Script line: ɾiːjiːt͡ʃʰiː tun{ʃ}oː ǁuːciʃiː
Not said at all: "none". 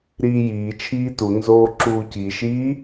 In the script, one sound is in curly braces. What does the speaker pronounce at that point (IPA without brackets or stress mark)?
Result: z